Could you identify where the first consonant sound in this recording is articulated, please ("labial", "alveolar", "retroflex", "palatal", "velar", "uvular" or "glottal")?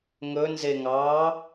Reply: velar